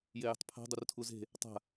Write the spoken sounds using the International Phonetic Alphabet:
j e j ə̤ tˤ pʰ a̤ dˤ u r tʰ u z e̤ | tˤ a̤

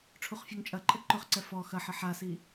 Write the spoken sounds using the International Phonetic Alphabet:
ʈ͡ʂʰ u χ fʲ o ŋ t͡ʃʼ ɐ ǃʼ ə ǃ ʊ χ ǀ ɛ f ɔ x ɐ ħ ə ħ a s i

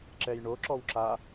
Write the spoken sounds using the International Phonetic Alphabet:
ǁ ɛ j ɳ o ǁ ɔ w ǁ a

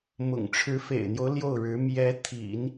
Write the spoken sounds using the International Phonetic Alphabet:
m ʊ̰˨˩ ŋ ʈ͡ʂʰ ɻ̩˧˥ f ḛ˨˩ ɪ̯ n̪ j o˦ ʊ̯ l j o˥˩ ʊ̯ ɻ ɻ̩˧˥ m j ɛ˧˥ t̪ʰ ḭ˨˩˦ n

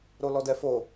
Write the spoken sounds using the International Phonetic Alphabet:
ɾ o l ɔ d ɛ f o

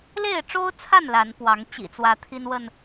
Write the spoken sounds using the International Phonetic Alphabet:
l e˥˨ ɪ̯ ʈ͡ʂ o˦ ʊ̯ t͡sʰ a˥˨ n l a˨˦ n p w ɑ˨˦ ŋ t͡ɕ ḭ˨˩ t͡s w ä˨˦ t̪ʰ i˦ n w ə˥˨ n

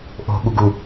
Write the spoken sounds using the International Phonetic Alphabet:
ʔ o̤ ɠ u ɡ u

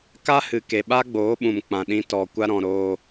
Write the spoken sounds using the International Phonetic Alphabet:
k a˦ h ɨ˨ k e˨ ɓ a˦ ɡ͡b oː˨˦ ɓ ũ˨ m k͡p ã˨ ɗ ĩ˧ t ɔ˨ kʷ a˧ ɾ ɔ̃˨ ɾ oː˧

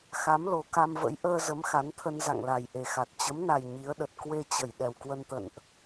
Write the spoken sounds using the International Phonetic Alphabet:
x a˨˦ m l o˨˩ k a˧ m v ə̰˧˥ j ʔ əː˧ z ə˨˦ m x a˨˦ n t̪ʰ ə˧ n z a̰˧˨ ŋ l a˨˩ j ʔ e˨˩ x a˨˩ t̚ t͡ɕ ə˨˦ m n a˨˩ j ɲ i˨˦ ə̯ ɗ ə˨˩ t̚ k w e˧ t͡ɕ ə˧˩ j ɗ ɛ˨˩ w k w ə˧ n t̪ ə̰˧˨ n ʔ

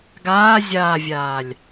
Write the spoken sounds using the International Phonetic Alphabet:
ɡ aː zʲ aː vʲ aː lʲ

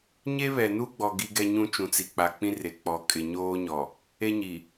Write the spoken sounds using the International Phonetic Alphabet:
ɲ e˦ β ɛ˨ n u˦ ɡ͡b ɔ˨ ɡ i˦ ɡ ɛ˦ ɲ ũ˦ t͡ʃ ũ˨ t͡s i˨ k͡p a˨ k͡p ĩ˦ r e˨ k͡p ɔ˨ kʼ ɪ˨ ɲ oː˦ ɲ ɔ˨ | e˦ ɲ i˨

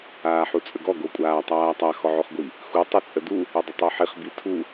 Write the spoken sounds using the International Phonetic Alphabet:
aː ħ u t͡sʼ ə ɡ ɔ ɡ o kʷʼ aː tˤ aː tˤ a x ɔ ʕ o χ ɡʷ i | x u tˤ u t͡sʼ ə d u | ə dˤ ə tˤ u ħ i χ b i tʰ u

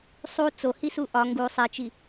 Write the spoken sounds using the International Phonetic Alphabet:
sˤ u t͡s o h i s u ʔ ɒ ŋ ɡ u sˤ i t͡ʃ i

